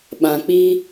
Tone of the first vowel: low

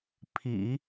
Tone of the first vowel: low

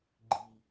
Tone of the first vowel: low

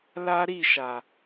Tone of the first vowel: high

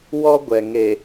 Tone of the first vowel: high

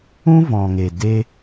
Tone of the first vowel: high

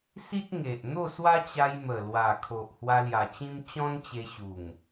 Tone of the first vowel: high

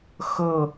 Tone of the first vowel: falling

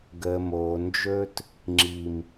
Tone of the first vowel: low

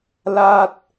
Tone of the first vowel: falling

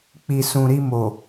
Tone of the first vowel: low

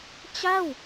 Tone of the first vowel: falling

